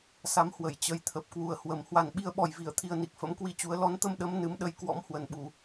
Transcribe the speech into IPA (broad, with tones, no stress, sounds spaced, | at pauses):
s a˨˦ m h w ə˧˩ j t͡ɕ ə˧ j t̪ʰ ə˨˩ p̚ k w u˨˩ ə̯ h w ə˨˩ m h w a˨˩ n ɓ i˧ ə̯ ɓ ɔ˨˩ j v i˧˩ ə̯ t̪ʰ i˧ ə̯ n i˨˩ k̚ f ə̰˧˥ m k w i˧ t͡ɕ u˨˦ ə̯ l ɔ˨˦ n t̪ ə˧ m ɗ ə˨˦ m n ɨ˨˦ m ɗ ə˧ j k w ɔ̰˧˥ m h w ə˨˩ n ɓ u˧˩˨